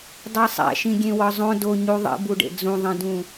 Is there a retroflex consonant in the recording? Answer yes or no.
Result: yes